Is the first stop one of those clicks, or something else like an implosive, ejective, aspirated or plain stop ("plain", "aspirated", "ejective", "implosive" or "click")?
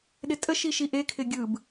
implosive